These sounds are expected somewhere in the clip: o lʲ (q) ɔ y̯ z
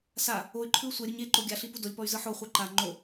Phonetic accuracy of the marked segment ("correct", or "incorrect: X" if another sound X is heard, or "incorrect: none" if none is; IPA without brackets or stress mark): incorrect: p